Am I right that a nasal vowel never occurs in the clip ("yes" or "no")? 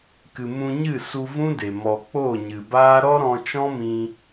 no